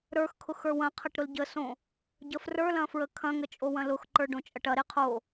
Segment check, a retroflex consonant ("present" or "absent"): present